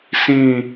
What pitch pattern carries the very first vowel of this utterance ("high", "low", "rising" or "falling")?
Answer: falling